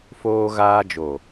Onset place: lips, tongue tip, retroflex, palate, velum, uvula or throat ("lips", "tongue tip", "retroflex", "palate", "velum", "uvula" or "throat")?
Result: lips